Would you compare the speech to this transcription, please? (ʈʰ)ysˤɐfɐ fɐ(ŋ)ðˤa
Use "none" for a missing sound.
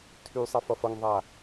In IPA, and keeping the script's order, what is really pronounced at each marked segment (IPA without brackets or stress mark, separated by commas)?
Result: tʰ, ŋ